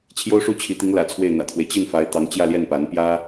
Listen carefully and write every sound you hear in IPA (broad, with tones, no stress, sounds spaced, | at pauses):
t͡ɕʰ j o˥ ʊ̯ ʂ u˥˩ t͡ɕʰ i˧˥ t̪ i˧˥ ŋ l ä̰˨˩ t͡sʰ w e˥˩ ɪ̯ n̪ ä̰˨˩ t̪ʰ w e˦ ɪ̯ t͡ɕ i˥˩ n f a˧˥ ɪ̯ t̪ ɑ˧˥ ŋ t͡ɕ j ä˥˧ l j ɛ˥˩ n p a˧˥ n p j ä˥